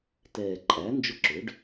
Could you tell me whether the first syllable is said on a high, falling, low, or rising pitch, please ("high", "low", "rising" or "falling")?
low